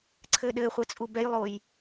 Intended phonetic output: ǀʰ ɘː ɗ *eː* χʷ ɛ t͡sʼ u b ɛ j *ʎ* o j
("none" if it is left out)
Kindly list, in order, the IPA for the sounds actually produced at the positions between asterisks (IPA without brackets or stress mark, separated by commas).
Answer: ɘː, lˠ